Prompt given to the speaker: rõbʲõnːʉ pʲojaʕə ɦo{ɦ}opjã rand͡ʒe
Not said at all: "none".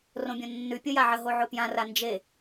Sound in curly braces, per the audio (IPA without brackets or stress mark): ʕ